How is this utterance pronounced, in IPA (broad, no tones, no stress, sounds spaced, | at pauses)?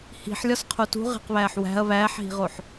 h i̤ ħ lʲ ɒ s qʰ o t ṳ ʁ e̤ q β æː ħ w æ̤ ɐ̯ β æː ħ ɦ i̤ ʁ o ħ